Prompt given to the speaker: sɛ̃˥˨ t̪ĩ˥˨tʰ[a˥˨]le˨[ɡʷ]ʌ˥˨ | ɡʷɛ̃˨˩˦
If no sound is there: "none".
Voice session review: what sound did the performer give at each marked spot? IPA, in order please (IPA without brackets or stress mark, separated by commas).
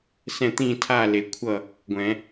a˥˨, kʷʰ